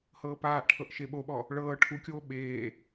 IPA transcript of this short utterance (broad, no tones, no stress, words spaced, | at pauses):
hɤːpaːʔʈʰɤʔ ʃeɓoɓɔ | ɭɤː ʈʰukʲoː ɓeː